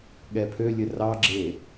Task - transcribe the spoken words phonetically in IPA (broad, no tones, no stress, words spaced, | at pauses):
ɠɛpʰølʲɘ rɑɡ͡ǁe